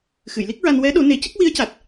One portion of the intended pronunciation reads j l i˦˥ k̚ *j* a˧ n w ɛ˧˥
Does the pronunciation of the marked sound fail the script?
yes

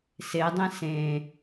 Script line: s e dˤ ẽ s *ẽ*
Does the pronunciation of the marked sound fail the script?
no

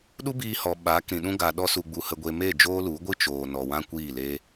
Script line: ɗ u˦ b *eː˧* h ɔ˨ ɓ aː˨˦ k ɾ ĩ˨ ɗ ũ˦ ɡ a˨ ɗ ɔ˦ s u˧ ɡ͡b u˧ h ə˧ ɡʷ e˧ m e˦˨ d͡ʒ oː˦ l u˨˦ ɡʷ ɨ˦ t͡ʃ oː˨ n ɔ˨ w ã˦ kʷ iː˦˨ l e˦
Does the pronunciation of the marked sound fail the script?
yes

